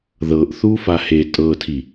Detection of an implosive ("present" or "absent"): absent